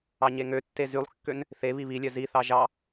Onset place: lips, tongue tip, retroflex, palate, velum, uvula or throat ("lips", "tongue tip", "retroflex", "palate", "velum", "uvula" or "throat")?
palate